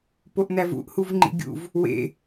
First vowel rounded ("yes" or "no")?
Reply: yes